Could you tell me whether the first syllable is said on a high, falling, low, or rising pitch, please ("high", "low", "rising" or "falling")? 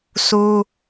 high